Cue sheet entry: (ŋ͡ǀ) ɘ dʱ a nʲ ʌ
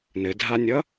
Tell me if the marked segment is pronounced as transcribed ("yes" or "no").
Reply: no